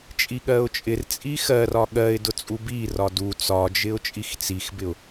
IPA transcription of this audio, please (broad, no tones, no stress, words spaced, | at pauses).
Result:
t͡ʃʼiɠɜʊ̯t͡ʃʼɪr t͡sʼixɜrɒ ɠɜɪ̯ dʊt͡sʼubi rɒdu t͡sɒd͡ʒɪʊ̯ t͡ʃʼixt͡sixbɪʊ̯